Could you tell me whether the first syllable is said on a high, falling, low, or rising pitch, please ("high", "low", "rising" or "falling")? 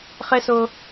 high